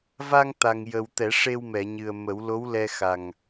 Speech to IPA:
va˧ŋ t̪a˨˩ŋjə˨˩w t̪ɛ˨˩˦ʂe˧wmɛ˨˩˨ɲɨ˨˩ə̯ mə˨˩˦w lo˧˥wlɛ˧xa˨˩ŋ

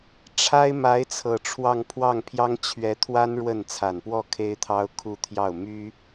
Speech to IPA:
ʈ͡ʂʰa˥ɪ̯ ma˧˥ɪ̯t͡sʰɤ˨˩ ʈ͡ʂʰwɑ˥˧ŋ pʰwɑ˥˩ŋpʰjɑ˥ŋ t͡ɕʰɥɛ˧˥t̪ʰwa˥n ɻwə˥˩n t͡sʰa˨˩npwɔ˥˩ kʰe˥ɪ̯t̪ʰɑ˥ʊ̯kʰu˥˧ t̪ʰjɑ˥˩ʊ̯ my˥

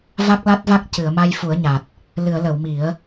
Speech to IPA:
va˦˥k̚la˦˥t̚va˦˥k̚ cɨ˨˩˨ə̯ma˧j fu˨˩˦ə̯ɲa˨˩t̚ | lɨ˨˩˨ə̯lə˨˩˨w mi˨˩˦ə̯

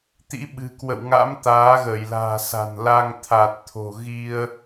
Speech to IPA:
t̪ḭ˧˥ɓɨ̤˨˩kwə̰˧˨wŋa̰˧˥m t̪aː˨˦ɣəː˧˩jla̤ː˨˩sa̤˨˩n la˧ŋt̪ʰa˨˩t̚t̪ʰo̤˨˩ ɣi˧ə̯

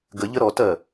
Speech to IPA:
ɡəʎə ɾɔtɜ

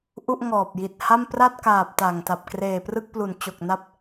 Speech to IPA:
ʔu˥˩ʔŋɔː˨˩p̚ji˨˩t̚ha˥˩m pra˥˩t̚kaː˨˩p̚ ta˨˩ŋta˨˩p̚ kreː˨˩prɯ˥˩k̚plu˨˩n t͡ɕo˨˩k̚na˦˥p̚

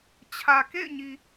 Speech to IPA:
t͡ɕʰä˨kḛ˦˨ɪ̯ɲi˨

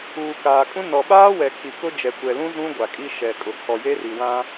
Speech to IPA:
uː˨kaː˨kʼũ˦ nɔ˨ɓaː˦wɛ˨ kʰi˨kʊ˦ d͡ʒɛ˨kʷɛ˨lũ˦ zũ˦ ɡʷa˨kʼi˦ ʃɛ˨kʼʊ˨ kʰɔ˨je˦ri˨ wã˦

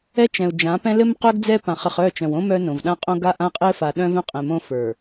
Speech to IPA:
ɛ˦t͡ʃɛ̃˨u̯d͡ʒã˨˦pɛ̃˦ lɘ˦mqœ˦ɡ d͡zɛ˦pã˨χɘ˨χ œ˦˨t͡ʃœ̃˨wõ˦ mœ˦ nõ˨vɗã˦qʼõ˦ ɡa˦ʔã˦qʼɘ˦fa˨ ɗœ̃˦vœ̃˦qʼɛ̃˨mõ˦ fə˞˨

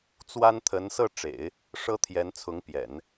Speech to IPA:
t͡swa˥nt̪ʰə˧˥n sɤ˥˩ʈ͡ʂḛ˨˩˦ɪ̯ | ʂɤ˥t̪ʰjɛ˧˥nt͡sʰʊ˧˥ŋpjɛ̰˨˩˦n

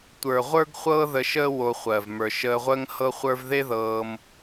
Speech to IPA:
tʷə˞˨ʁʷə˞˦ɡ χʷɤː˦ðə˧ʃəː˦ wo˧ χʷɜ˨v mə˞˨ʃəː˧ʁʷəː˦ŋ hɤ˦χʷə˞˦v ðe˦ðɤː˧m

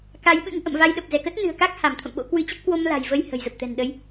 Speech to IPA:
ka˨˦jɓɨ̰˧˥ŋ ʔə̰˧˨mva˧jɗə˨˩p̚ zɛ˧˩kə˦˥t̚nɨ̤˨˩ə̯ka˦˥k̚ ha˧˩mt̪ʰə̰˧˨mɓo̰˧˥ kwɨ˨˦t͡ɕə˦˥p̚ kwo˧m la̤˨˩jvə˧j hə̤˨˩jzə˨˩p̚ t̪ɛ̤˨˩nɗə˨˦j

